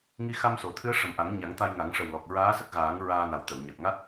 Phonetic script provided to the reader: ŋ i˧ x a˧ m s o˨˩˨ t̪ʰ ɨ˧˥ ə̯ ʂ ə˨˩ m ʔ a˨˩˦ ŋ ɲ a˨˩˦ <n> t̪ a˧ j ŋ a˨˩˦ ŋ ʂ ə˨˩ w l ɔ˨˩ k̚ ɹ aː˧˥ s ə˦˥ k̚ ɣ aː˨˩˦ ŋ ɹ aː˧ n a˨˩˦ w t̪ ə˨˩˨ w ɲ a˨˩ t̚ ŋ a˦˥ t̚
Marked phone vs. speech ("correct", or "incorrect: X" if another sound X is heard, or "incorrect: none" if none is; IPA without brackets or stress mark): incorrect: ŋ